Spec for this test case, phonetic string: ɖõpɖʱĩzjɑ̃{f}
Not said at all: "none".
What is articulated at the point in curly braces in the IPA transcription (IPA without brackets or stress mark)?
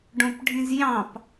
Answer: p